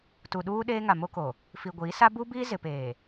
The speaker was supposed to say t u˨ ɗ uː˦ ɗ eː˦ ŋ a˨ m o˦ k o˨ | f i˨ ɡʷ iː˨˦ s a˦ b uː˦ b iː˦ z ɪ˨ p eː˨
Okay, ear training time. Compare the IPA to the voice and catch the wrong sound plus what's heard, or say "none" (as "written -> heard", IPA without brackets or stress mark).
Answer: none